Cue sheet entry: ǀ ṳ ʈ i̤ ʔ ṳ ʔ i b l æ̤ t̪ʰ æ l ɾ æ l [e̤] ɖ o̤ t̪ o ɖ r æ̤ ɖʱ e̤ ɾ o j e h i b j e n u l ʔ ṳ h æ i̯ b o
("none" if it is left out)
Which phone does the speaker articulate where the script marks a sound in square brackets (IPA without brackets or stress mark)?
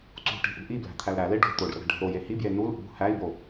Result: e